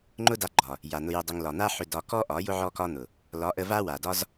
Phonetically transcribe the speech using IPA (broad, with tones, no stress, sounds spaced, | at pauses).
ŋ͡ǃ ʊ˦ d a˧ ɡ͡ǃ ɒ˨ | j a˨ n̪ ʊ˧ j ʊ˧ dˤ ʏ˧ ŋ l ɒ˨ n̪ a˦ ħ ʏ˧ d ɒ˧ k ɔ˦ ʔ ɒ˨˦ j ʊ˦ ʕ ɔ˧ k ɒ˧ n̪ ʊ˨ | l ɒ˨˦ ʔ ə˧ v a˦ w a˨ d ɒ˦ z